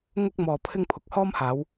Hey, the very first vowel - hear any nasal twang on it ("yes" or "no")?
no